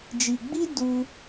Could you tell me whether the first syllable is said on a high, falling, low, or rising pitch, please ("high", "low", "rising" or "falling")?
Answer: low